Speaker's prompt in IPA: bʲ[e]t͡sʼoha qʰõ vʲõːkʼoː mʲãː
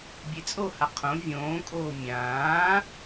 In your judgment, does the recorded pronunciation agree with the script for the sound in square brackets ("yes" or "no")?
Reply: yes